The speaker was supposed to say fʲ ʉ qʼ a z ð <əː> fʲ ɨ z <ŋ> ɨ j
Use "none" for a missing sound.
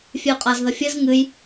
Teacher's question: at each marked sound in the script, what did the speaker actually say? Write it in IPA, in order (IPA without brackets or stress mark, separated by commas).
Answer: ə, ŋ